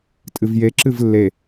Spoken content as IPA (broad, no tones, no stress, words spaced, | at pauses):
tʼɨvje ǁɨvlːe